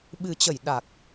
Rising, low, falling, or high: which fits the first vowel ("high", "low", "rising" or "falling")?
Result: low